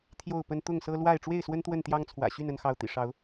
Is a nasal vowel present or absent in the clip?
absent